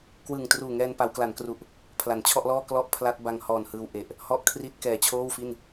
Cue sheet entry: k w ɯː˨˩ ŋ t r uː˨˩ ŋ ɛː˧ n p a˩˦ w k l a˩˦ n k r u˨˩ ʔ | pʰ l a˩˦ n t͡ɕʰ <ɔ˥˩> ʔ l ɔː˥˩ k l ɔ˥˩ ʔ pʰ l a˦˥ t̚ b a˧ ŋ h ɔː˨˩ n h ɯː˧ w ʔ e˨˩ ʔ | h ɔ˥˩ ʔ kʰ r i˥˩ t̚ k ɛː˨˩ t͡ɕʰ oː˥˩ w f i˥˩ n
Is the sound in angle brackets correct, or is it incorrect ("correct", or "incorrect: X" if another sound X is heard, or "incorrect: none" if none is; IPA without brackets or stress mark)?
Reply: correct